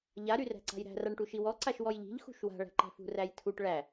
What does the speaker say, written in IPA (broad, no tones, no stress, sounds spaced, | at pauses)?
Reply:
ʎ a ɾ y r æ̤ ǀ a̤ j ɾ æ̤ r a ɳ ʈ u ʃ i w ɔ ǀ a ʃ w ɔ j ʎ i̤ ʎ x ṳ ʃ w a̤ ɭ æ̤ ǃ æ̤ f ṳ r æ j tʰ u ʈ ɭ æ